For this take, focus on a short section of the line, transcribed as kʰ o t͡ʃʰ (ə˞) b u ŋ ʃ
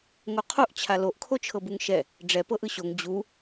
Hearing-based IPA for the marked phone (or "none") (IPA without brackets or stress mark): ɤ